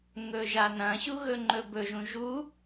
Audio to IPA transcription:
ŋɵʒanɐ̃ɕu ɣɵŋ͡ǃɵbɵʒũ ʒu

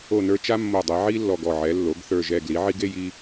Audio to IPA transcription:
o˧˩nə˞˧ t͡ʃa˥mːo˧˩dˤɛ˩˧ ʕi˥lːɔ˧˩ɡ ɔ˧˩ʕɛ˩˧lːo˩˧ɡ θə˞˧˩ʒɛ˧˩ ɡli˩˧ʕi˧ɡe˥˧ji˧

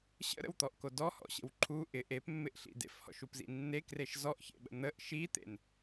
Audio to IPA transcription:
ɕə̰ɾə̰wt̪ɔʔko dɔhɔ̰ɕə̰w ǃʰu ʔɪ ʔepmːɪʔɬḭ dḛfhɔ̰ʃupzḭ nːekreʃ zɔʔçḛɓə̰ n̪əʔ ʃit̪ḛn

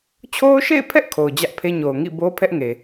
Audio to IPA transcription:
t͡ɕʰo˦ʊ̯ʃḛ˦˨ɪ̯pʰɛ˦ʔ kʰo˨ʊ̯ d͡ʑä˦ʔpʰe˦ɲo˨ʊ̯ ŋḭ˦˨ bo˦pʰɛ˦ʔ ŋe˨

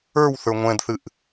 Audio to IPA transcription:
ə˞wθə˞ ŋʷɛ̃dθɨʔ

